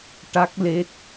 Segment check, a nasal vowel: absent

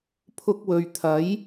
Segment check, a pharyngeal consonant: absent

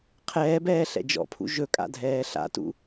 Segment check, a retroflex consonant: absent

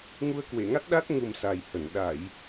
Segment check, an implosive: present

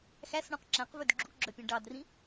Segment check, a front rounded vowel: present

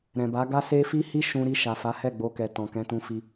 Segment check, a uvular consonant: absent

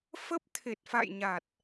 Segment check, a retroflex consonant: absent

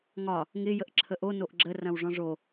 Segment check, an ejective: absent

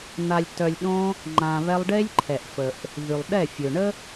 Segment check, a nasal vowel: present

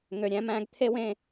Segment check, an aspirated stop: present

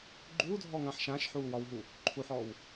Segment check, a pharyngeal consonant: present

